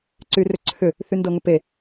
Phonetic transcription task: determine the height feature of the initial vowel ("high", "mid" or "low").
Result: high